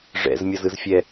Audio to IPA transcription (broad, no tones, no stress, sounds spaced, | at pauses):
ʐ ɛ̰ z mʲ ʌ z ɯ z fʲ ɛ